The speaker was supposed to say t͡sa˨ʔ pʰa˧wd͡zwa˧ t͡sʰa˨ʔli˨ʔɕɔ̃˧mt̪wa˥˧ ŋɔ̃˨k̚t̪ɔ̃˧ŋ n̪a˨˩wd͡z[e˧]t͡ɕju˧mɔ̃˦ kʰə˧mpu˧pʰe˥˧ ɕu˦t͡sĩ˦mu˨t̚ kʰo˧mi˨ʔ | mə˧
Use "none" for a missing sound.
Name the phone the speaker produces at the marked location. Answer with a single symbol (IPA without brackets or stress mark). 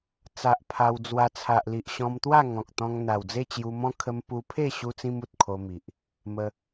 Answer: e˥˧